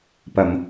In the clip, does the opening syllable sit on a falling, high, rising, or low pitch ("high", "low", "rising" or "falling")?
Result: low